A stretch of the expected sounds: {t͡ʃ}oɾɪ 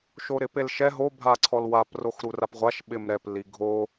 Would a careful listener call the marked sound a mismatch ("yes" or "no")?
yes